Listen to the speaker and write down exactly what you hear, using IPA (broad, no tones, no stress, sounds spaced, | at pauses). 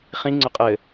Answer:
χ ĩ ŋ͡ǀ ʊ qʼ ɘ